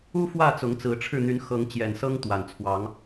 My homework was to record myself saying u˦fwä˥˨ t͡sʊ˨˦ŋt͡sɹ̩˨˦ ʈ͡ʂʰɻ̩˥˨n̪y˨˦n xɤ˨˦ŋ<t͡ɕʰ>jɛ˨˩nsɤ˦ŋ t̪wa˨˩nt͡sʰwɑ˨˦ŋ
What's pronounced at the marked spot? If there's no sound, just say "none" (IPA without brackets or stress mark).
t͡ɕ